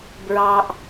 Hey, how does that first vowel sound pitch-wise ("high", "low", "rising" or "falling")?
high